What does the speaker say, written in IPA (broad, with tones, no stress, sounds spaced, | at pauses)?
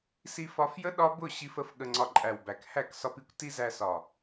s i˧ f ɒ˧ f j ə˦ ɗ ɒ˦ b ʊ˦˨ ɕ i˧ f ə˧ f ɠ ə˧ ŋ͡ǀ ɒ˧ ǃʼ æ˨ w b æ˨ k h æ˦˨ k s ɒ˧ p i˦ kʷ t i˦ z æ˧ s ɒ˨